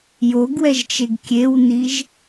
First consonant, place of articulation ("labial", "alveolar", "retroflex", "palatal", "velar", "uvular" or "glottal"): palatal